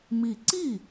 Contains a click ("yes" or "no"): yes